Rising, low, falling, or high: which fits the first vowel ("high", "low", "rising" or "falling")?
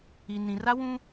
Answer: low